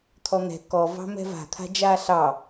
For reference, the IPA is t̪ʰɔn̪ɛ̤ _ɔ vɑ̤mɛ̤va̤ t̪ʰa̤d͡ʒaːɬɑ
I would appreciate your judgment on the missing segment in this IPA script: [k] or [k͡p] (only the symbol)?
k